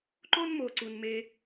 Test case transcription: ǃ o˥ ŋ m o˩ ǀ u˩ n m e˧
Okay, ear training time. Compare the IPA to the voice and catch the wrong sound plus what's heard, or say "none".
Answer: ŋ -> n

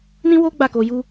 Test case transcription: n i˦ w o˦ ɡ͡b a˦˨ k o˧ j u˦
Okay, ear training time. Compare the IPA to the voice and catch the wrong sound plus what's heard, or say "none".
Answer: i˦ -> ĩ˦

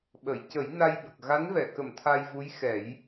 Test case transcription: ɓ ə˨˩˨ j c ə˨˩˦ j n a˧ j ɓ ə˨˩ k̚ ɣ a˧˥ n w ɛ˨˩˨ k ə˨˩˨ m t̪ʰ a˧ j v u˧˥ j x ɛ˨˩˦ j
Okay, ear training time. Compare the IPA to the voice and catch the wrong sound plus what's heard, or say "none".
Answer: w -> v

